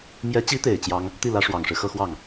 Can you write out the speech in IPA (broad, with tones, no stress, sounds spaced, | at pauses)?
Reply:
m j ɛ˧˥ t͡ɕ i˧˥ t̪ e˨˩ ɪ̯ t͡ɕ j ɑ˥ ŋ | t̪ i˥˩ l ä˧˥ ʂ w ɑ˨˩ ŋ ʂ ɻ̩˦ x ɤ˥˧ x w ɑ˥˩ ŋ